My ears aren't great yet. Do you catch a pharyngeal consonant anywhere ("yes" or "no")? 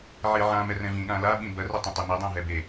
yes